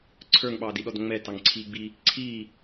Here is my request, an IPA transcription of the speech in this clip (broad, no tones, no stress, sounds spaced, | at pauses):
ǀʰ ə˞ ŋ ɓ ɑː d i ɗ ɔ d ŋ͡m ɛ t ɑ ŋ ǀʰ iː ɡ͡b i | ǀʰ iː